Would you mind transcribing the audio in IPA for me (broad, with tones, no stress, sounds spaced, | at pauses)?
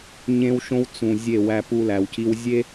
ɲ ẽ˦ w ʃ õ˦ w t͡s ũ˨ zʲ e˦˨ w æ˦ p u˦ l æ˨ w c i˦ w zʲ e˦